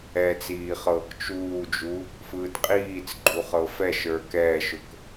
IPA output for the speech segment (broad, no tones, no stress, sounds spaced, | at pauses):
ɛ t͡s iː χ ɤː k t͡ʃ uː d͡ʒ u | f ɯː t qʼ iː t͡s ɡ͡ǃ u χ ɤ f ɛ ʃ ə˞ k ɛː ʃ ʊ k